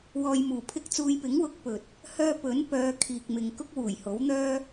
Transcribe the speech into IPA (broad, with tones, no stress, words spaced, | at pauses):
wɔː˧jmuː˨pʰɪ˥k̚ t͡suː˧jpɪ˨˥ŋwʊ˨˥k̚pɵ˨t̚ | hœː˧ pɵ˨˥n pœː˨˧kʰiː˨k̚mɪ˨ŋ kʊ˥k̚wuː˨˩jho˨˥wn̪œː˥